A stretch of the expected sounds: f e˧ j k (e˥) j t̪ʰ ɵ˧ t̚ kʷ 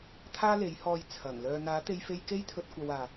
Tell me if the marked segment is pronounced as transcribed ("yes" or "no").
yes